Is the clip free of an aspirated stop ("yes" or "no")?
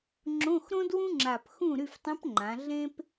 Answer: yes